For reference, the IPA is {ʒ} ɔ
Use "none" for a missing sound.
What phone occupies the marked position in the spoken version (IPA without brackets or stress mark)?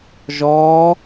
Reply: ʒ